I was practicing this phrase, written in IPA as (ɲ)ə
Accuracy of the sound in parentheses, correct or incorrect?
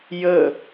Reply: incorrect